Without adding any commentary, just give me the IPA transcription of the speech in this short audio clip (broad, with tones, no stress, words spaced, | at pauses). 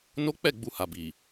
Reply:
no˦k͡pɛ˦˨ ɡ͡bu˧ha˨bi˨